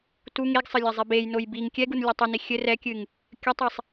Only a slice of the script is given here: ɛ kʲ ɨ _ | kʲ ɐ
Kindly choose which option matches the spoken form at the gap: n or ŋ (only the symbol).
ŋ